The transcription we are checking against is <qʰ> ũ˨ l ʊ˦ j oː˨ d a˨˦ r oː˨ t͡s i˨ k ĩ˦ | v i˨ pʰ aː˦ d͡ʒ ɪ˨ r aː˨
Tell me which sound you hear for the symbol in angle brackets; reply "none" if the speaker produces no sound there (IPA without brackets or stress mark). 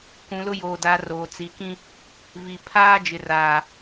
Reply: k